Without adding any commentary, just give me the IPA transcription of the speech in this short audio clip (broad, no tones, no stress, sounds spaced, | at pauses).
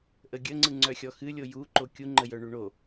ʔ ə ɡʲ ə ŋ͡ǀ ɯ ŋ͡ǀ œ xʲ ɔ x ɨ lʲ o j u ǃ o kʲ u ŋ͡ǃ ə j œ ɳ u ɳ o